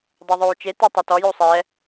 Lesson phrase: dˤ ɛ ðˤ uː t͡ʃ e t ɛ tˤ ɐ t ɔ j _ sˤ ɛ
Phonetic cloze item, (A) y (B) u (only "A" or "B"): B